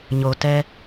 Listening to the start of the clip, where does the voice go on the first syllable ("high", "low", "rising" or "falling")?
low